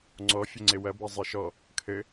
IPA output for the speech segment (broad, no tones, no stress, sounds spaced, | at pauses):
ŋ͡ǀ ɔ fʲ e ŋ͡ǀ e w ɐ b e zˤ e ʃ ɔ | kʰ ɘ